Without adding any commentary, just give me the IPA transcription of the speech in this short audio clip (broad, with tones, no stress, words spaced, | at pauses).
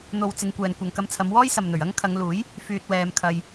n̪o˨wt͡sɪ˨ŋ kʷɛː˨nkʷɐ˨ŋkɐ˧mt͡sʰɐ˨˧m wɔː˥jsɐ˨mn̪ɵ˨˩ɥ ɐ˥ŋkʰɐ˨˧ŋluː˨˥j | fyː˧t̚wɛː˧mkʰɐ˧j